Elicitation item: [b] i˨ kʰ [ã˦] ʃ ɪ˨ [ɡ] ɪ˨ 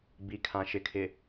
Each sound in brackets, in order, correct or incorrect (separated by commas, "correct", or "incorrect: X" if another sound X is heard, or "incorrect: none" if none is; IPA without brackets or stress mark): correct, incorrect: ã˨, incorrect: kʰ